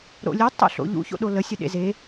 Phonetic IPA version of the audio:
ɾ o̰ lʲ ʊ tˤ o̰ ɬ o̰ ʎ ṵ ç o̰ ɗ o l ə sʲ ə ɗ ḛ z e

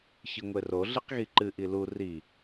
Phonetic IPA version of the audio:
ç ɨ ŋʷ e r o ɮ i q ɣ i ǃ ɨ ʔ i l u r i

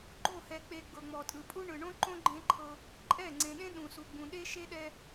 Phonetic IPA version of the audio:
ɡ͡ǃ o˦˨ h ɛ˨ k͡p e˨ ɡ͡b ɤ˨ ŋ͡m ɔ˨ tʼ ɯ˨ pʼ u˦ ɳ ɯ˨ ɳ õ˦ ǃ õ˦ ɡ͡ǃ ẽ˦ ǃʰ ɤ˦ | ǃʼ ɛ˦˨ ŋ͡ǀ ẽ˨ ɗ ẽ˦ ɗ ũ˨ s u˨ ɡ͡b ũ˨ ɗ e˦ ʃ e˦ ɗ ɛ˦

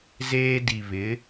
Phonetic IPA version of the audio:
z eː˦ d i˨ β ɪ˨˦

